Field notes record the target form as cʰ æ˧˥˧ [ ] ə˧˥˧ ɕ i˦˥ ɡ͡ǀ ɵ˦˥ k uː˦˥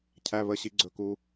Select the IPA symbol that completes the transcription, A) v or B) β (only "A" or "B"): B